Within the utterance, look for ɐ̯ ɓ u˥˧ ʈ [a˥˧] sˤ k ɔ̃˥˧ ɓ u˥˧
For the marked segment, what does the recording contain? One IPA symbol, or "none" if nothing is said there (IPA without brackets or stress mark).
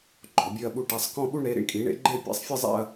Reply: a˥˧